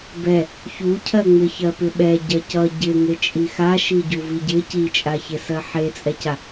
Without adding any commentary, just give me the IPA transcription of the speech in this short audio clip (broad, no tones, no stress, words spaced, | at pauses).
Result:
bɛ | çucʰɜŋ͡mɪçɜ pɪɓɛ ɟɜcʌ ɟɪ ŋet͡ʃʼixa ʃiɟuviɟɪ cit͡ʃʼaçesɜ ħet͡sʼɛca